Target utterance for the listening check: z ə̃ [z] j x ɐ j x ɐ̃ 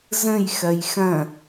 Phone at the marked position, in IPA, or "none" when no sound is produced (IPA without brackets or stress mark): none